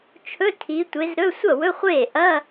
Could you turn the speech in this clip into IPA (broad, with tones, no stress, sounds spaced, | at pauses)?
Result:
t͡ʃʰ ɵ˧˥˧ tʰ i˨˦ tʷ e˨˦ z ɾ ɵ˧˥˧ sʷ ɐ˥˩ w ɵ˧˥˧ χʷ eː˥˩ ʔ ɐ˧˥˧